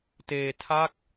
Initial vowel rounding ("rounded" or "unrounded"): unrounded